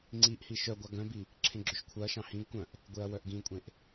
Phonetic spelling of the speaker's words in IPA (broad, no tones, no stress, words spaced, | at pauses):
ŋ͡ǀiʔhi ʃœɡʷɑ ɡœ̃bi | ǁʰẽɡ͡ǁɵʃkʷʰœɐ̯ʃɑ̃ hĩɡ kʷœ̃ʔ | ɡʷeɐ̯wœʔɡĩkʷʼẽʔ